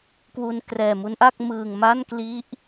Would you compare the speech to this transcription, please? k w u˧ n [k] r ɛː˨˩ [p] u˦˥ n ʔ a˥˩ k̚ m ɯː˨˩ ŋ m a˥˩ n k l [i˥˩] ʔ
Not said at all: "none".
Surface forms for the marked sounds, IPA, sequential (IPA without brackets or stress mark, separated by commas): k, m, i˦˥